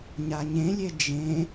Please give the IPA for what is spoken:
ɲ a ɲ ẽ lʲ e d͡ʒ ẽ

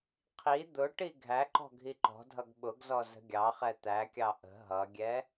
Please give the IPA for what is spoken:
qʰ i d̪ ʊ ʈ i ɡʱ æ ǃ ɔ̤ ɡʱ i ǃ ɔ̤ dʱ ʌ ɡ ɓ ʊ ɡ z ɔ z ə̤ ɡʲ ɑ χ ɛ t̪ æ kʲ ɑ ʔ ə̤ ɦ ʌ ɡʲ ɛ

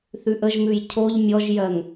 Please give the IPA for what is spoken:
θ ʉ ʔ ə ʒ m ʉ j cʰ o ʎ mʲ ɔ ʒ j ɜ ŋ

